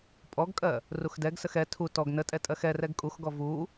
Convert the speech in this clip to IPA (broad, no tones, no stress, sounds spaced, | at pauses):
pʼ ɔ ɡ kʼ ɜ | r u x d ɛ ɡ s ə x ɛ tʰ u t ɔ ɡ n ə tʼ ɛ tʼ ɜ x ɛ r ɛ ɡ kʼ u x ɡ ɔ v u